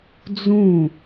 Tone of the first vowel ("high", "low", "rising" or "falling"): falling